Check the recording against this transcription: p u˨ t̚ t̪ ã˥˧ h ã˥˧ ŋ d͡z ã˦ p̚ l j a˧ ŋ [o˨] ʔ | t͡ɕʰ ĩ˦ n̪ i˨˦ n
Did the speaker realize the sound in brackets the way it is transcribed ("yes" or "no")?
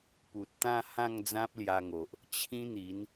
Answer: yes